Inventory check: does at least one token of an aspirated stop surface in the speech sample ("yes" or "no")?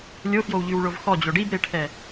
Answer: yes